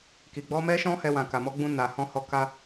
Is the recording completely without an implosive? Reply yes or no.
yes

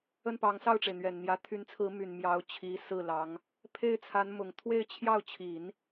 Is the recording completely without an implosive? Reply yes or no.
yes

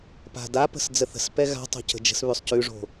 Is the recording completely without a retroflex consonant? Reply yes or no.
no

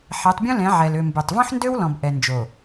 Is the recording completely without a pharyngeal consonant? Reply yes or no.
no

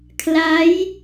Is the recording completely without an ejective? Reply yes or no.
yes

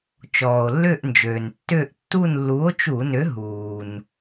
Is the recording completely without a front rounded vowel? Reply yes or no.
no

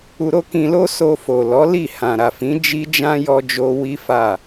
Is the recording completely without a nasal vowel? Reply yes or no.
no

